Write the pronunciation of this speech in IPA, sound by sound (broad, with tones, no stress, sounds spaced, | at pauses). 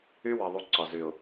y˦ w ɜ˨ ðˤ u˨˦ ǀ ɒ˨ z y˨ ʊ̯